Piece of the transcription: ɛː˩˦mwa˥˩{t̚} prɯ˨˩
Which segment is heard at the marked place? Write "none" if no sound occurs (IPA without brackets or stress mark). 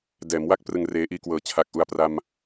k̚